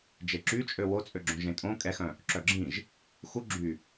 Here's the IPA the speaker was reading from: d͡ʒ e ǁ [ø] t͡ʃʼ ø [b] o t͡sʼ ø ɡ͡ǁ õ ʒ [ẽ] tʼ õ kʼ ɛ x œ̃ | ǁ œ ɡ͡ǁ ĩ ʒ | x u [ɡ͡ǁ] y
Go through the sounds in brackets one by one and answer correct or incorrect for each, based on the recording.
incorrect, incorrect, correct, correct

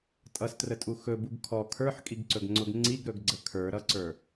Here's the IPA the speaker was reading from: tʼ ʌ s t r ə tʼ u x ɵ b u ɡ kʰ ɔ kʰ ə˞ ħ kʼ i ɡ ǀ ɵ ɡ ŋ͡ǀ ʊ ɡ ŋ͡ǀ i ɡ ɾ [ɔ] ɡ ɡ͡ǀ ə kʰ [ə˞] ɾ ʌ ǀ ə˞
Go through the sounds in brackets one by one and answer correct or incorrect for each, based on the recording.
incorrect, correct

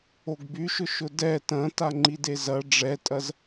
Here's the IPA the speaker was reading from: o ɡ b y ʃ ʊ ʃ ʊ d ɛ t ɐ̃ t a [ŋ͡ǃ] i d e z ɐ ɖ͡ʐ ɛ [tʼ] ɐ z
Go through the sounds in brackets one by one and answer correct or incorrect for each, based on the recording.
correct, correct

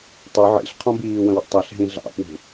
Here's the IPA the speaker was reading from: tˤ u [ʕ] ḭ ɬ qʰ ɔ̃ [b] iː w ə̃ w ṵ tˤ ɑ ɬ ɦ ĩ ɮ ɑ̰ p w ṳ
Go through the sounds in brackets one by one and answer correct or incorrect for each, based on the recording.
correct, correct

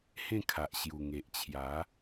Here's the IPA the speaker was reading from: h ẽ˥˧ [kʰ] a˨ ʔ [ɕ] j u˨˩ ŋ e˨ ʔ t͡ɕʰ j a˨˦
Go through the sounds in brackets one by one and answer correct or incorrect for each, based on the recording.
correct, correct

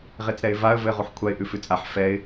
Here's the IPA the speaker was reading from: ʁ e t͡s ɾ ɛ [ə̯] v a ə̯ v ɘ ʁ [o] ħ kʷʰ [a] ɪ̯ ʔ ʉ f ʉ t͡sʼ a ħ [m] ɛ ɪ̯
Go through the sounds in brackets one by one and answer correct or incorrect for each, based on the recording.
incorrect, incorrect, correct, incorrect

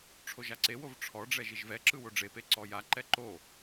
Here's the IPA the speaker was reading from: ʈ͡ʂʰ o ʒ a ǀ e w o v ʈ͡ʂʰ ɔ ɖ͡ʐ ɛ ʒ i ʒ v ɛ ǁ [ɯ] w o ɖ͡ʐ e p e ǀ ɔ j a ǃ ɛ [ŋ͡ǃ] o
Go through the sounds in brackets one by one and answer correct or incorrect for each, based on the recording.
correct, incorrect

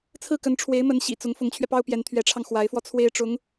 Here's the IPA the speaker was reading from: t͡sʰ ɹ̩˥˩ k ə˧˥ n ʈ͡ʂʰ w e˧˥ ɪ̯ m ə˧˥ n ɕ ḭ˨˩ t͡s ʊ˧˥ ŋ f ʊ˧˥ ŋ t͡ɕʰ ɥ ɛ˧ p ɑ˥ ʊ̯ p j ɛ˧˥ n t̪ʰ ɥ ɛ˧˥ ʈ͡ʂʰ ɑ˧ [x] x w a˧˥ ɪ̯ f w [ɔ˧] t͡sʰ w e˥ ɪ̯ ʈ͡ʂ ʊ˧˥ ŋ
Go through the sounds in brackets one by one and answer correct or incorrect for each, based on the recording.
incorrect, correct

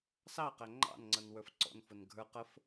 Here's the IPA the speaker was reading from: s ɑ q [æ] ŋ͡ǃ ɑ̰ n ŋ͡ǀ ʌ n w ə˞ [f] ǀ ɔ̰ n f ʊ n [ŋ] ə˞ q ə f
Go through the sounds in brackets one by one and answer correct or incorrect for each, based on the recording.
correct, correct, incorrect

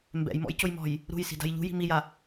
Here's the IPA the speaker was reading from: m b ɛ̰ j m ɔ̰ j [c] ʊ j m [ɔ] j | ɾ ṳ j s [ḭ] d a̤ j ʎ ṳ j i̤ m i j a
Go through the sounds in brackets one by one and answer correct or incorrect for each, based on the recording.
correct, incorrect, incorrect

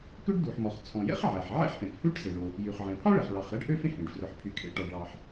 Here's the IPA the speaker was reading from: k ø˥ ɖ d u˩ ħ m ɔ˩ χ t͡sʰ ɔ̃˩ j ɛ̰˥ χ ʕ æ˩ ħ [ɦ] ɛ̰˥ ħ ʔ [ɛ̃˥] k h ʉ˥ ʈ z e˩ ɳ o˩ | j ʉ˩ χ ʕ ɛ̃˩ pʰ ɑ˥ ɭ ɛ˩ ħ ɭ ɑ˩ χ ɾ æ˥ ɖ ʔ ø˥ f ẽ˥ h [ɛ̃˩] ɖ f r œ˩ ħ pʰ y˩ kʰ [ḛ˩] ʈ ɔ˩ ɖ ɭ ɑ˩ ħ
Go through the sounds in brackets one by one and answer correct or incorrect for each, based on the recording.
incorrect, incorrect, incorrect, correct

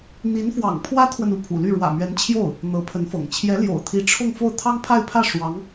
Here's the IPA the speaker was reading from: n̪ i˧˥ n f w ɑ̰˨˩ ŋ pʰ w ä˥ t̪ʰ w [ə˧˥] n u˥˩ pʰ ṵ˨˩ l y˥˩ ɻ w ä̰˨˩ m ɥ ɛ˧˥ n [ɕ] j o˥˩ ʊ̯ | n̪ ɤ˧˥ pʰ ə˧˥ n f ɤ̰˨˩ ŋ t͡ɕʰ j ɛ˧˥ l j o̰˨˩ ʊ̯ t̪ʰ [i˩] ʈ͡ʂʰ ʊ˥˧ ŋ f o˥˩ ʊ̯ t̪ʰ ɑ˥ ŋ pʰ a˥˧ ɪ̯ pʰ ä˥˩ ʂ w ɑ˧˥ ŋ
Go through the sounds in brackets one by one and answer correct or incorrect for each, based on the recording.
incorrect, incorrect, incorrect

